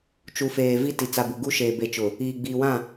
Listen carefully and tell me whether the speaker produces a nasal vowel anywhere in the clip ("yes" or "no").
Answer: yes